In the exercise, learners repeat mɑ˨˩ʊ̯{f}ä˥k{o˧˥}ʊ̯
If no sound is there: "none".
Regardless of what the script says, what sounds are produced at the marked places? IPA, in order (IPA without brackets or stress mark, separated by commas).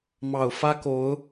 f, o˧˥